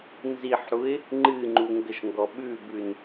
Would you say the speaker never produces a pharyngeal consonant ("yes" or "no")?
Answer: no